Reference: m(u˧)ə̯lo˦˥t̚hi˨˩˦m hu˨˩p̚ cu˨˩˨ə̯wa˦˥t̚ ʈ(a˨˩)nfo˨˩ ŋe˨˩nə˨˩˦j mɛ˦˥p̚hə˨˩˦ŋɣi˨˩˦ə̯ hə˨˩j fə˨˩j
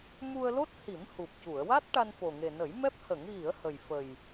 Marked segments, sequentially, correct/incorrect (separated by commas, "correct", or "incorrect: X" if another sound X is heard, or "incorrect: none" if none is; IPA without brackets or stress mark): correct, incorrect: a˧